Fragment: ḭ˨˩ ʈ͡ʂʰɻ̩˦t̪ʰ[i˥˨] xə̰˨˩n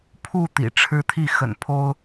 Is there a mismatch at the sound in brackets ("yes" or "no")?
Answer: no